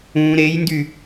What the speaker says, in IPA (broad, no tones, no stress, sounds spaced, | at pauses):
ũ ɾ e j n d y